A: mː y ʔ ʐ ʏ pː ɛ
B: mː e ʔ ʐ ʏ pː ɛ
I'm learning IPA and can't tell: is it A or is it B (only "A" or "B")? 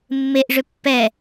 B